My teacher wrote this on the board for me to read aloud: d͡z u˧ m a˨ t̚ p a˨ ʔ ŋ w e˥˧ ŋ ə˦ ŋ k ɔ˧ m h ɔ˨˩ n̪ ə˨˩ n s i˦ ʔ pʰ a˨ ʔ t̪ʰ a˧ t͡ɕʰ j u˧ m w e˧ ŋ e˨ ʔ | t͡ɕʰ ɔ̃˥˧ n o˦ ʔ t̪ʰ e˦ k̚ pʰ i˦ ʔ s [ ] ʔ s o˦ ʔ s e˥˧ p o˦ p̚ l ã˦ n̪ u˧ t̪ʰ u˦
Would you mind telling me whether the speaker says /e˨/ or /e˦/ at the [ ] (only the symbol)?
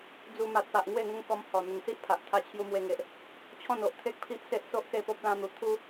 e˦